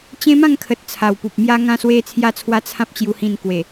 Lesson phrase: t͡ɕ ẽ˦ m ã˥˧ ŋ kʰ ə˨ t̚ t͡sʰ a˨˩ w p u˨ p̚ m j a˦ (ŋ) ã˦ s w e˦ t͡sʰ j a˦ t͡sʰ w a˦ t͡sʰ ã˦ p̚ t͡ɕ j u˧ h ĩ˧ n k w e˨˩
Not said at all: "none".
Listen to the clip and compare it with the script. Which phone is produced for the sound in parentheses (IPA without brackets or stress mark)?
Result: ŋ